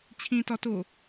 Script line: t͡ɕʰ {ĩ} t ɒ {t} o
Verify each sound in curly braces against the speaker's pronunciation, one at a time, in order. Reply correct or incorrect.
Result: correct, correct

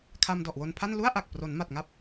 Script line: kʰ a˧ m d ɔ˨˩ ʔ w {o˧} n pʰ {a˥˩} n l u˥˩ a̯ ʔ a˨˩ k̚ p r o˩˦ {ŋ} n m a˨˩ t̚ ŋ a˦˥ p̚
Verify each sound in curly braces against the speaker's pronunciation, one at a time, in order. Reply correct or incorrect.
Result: correct, correct, incorrect

